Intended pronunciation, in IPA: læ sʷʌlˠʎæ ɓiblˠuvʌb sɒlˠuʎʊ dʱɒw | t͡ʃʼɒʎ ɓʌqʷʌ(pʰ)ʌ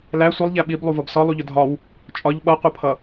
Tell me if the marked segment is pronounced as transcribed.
yes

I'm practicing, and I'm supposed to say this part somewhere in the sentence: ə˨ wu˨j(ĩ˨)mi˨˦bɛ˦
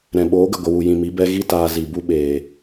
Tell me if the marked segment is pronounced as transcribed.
yes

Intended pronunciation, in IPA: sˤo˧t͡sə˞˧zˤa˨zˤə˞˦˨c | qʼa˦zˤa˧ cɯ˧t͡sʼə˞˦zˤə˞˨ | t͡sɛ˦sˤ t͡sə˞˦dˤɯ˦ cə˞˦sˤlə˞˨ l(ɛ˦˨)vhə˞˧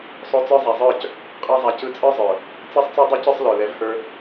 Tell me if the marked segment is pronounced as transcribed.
no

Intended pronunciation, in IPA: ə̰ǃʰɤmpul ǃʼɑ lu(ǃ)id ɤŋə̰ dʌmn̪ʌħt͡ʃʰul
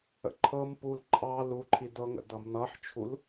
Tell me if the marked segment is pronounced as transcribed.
no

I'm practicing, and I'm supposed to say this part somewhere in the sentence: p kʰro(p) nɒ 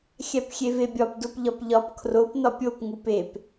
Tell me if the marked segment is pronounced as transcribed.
yes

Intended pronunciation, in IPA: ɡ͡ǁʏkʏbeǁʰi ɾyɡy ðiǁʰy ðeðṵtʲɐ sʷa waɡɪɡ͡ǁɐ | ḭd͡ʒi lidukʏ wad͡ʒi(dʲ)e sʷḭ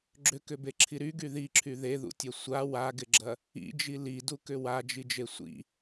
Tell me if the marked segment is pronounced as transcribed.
no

